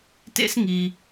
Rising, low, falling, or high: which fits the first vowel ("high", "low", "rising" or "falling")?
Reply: high